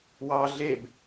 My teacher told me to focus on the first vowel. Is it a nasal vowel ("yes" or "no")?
no